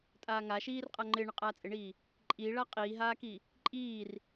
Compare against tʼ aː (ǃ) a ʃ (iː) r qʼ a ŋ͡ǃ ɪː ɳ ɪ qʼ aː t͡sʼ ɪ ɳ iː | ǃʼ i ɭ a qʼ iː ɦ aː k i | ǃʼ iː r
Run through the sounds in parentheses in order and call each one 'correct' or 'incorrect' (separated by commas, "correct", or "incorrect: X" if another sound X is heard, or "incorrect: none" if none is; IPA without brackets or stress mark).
incorrect: ŋ, correct